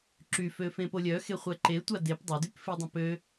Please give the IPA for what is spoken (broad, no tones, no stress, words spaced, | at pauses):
ǁyfø fẽpolʲœxe χʷɛǃetʷa dep dˤodyp fidˤũpø